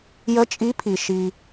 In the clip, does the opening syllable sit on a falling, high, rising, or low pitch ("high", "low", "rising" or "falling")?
rising